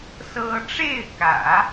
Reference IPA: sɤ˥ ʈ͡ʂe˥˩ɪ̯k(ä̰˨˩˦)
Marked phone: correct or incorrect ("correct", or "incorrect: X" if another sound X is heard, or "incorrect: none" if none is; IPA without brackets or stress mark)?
correct